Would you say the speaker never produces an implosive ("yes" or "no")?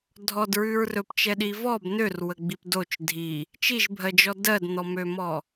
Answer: no